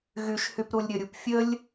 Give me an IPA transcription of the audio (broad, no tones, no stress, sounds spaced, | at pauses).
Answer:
ɣ y ʃ h y p ɾ u lʲ ɾʲ ə ɾʲ u p fʲ ə lʲ